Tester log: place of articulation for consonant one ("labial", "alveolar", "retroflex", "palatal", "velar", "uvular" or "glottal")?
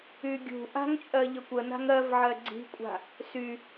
velar